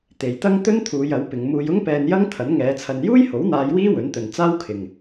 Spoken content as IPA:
t̪ e˨ j t̪ ɐ˥ ŋ t̪ ɵ˥ n t̪ʰ uː˨˧ j ɐ˨˥ w p ɪ˨˧ ŋ m uː˧ j ʊ˥ ŋ p ɛː˧ n j ɐ˥ ŋ t̪ʰ ɐ˨˥ n ŋ ɛː˨˧ t͡sʰ ɐ˧ n j uː˥ j h o˨˥ w n̪ aː˨˧ j w iː˥ w ɵ˨˥ n t̪ ɵ˨ n t͡s aː˥ w kʰ ɪ˨ ŋ

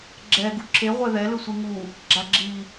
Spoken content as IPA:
ɡ͡ǁ ɛ ɡ u ǁʰ e ʁʷ ɛ ð ɛ l ɯ sʷ i ŋ u | ɡ͡ǁ a ɡ͡ǁ i

